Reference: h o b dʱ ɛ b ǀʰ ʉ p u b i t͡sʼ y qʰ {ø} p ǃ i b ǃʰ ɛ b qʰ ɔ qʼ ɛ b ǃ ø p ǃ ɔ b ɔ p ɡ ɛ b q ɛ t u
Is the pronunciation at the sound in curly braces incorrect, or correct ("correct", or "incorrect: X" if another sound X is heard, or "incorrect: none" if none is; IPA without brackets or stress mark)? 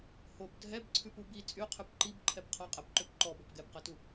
incorrect: ʉ